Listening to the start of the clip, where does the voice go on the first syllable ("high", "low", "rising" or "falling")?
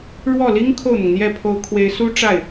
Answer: falling